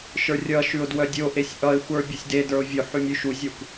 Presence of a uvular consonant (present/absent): absent